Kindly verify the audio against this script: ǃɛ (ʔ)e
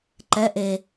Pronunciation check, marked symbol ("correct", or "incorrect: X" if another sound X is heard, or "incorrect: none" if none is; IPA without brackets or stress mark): correct